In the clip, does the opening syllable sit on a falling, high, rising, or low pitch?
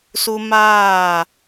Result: high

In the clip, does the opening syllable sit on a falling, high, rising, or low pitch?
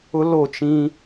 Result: high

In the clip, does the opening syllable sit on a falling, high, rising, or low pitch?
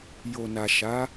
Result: low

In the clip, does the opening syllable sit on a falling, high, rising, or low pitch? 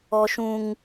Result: high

